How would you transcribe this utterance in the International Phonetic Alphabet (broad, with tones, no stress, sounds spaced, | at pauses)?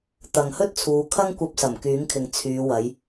t̪ ɐ˨ ŋ h ɵ˥ t̚ t͡sʰ uː˨˧ kʰ ɐ˥ ŋ kʷ ɐ˧ p̚ s ɐ˨˩ m k yː˨˥ ŋ kʰ ɪ˨ ŋ t͡sʰ yː˨˧ w ɐ˨˧ j